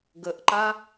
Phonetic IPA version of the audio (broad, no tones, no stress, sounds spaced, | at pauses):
ɡ ə ʔ ǃ a